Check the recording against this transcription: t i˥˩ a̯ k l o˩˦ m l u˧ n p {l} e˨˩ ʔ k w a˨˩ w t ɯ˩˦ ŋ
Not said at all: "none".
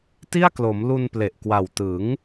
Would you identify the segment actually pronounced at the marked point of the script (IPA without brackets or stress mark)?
l